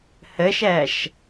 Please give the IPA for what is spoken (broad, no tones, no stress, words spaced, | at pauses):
hɘʃɛʃ